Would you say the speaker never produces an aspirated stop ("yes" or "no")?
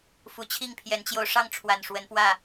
no